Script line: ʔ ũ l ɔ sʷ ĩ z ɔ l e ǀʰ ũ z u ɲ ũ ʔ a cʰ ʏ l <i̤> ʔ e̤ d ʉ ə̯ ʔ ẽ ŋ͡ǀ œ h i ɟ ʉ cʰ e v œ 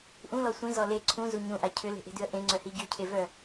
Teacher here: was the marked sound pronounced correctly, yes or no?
no